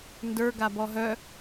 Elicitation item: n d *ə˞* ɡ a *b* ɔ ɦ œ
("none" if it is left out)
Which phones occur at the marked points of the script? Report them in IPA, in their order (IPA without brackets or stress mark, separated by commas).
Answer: ə˞, b